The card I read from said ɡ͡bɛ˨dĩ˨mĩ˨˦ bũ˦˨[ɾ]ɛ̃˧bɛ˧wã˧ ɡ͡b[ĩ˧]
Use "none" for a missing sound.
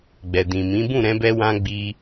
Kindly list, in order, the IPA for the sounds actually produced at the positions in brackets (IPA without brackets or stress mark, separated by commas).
ɾ, i˧